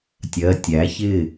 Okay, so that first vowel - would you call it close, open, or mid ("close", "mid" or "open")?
mid